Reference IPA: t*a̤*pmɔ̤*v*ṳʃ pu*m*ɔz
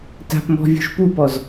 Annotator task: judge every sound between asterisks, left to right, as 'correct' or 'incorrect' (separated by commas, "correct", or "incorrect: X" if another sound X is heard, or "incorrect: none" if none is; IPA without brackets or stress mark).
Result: correct, incorrect: vʲ, incorrect: p